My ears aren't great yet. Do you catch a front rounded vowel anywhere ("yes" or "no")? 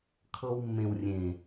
no